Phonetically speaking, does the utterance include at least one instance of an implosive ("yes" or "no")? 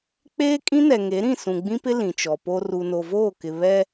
no